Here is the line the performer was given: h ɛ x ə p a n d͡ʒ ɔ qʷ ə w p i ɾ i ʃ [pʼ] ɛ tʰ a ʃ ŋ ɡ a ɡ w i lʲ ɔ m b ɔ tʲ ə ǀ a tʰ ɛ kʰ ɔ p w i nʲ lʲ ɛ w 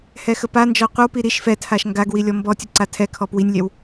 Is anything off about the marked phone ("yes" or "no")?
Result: yes